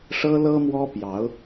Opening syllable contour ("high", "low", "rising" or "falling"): high